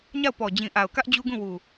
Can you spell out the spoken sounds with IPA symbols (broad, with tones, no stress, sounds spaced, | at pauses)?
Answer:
ɲ a˦˨ ʊ̯ p ɔ˨ d͡ʑ ĩ˨ ʔ a˨ ʊ̯ k ä˦ ʔ d͡ʑ u˦ ɡ ũ˦˨ w u˨